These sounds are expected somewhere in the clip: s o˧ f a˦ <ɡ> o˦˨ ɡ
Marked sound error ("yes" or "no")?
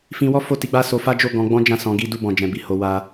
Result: yes